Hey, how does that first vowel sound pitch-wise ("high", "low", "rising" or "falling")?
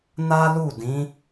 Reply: high